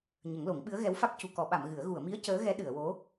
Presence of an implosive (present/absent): present